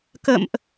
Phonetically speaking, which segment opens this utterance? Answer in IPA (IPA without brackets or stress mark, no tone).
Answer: k